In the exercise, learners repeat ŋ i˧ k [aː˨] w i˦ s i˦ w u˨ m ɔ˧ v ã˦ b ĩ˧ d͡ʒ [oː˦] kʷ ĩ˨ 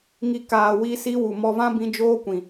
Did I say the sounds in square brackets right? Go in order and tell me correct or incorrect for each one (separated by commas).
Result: correct, correct